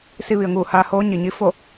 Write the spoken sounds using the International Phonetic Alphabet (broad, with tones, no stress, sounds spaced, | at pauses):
s i˧ ʋ i˩ ə̯ ŋ uː˧˩ h aː˧ h oː˧˥ ɲ i˩ ɲ i˧˥ f o˥˨